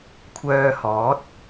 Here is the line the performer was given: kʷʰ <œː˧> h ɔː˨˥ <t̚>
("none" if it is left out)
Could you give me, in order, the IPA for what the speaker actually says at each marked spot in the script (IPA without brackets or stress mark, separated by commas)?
œː˧, t̚